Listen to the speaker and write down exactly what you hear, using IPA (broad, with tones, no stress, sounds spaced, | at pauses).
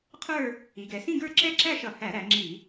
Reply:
qʰ ə˞˥˧ | i˩˧ ɡ ɛ˩˧ s ĩ˥˧ ɡ ə˞˥˧ ǁ ɛ˥˧ ǁ æ˥˧ ʃ ʌ˧˩˧ h æ˧˩˧ ɾ æ˩˧ ŋ͡ǁ i˧˩˧